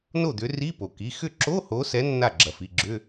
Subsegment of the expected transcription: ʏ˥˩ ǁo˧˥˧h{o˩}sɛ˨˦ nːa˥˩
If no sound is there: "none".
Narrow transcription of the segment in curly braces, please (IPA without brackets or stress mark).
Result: o˨˦